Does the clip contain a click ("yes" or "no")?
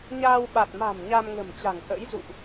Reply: no